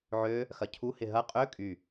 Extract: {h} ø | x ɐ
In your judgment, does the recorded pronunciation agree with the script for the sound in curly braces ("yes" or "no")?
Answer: no